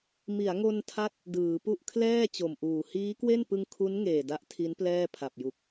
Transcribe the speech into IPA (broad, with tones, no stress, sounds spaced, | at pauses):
m i˩˦ a̯ ŋ o˧ n tʰ a˦˥ t̚ | d ɯː˩˦ p u˥˩ ʔ kʰ l ɛː˥˩ t͡ɕ o˨˩ m ʔ uː˨˩ h iː˦˥ k w e˥˩ n p ɯ˧ ŋ kʰ u˦˥ n ŋ eː˨˩ d a˦˥ ʔ tʰ i˦˥ n p l ɛː˥˩ pʰ a˨˩ p̚ j u˨˩ k̚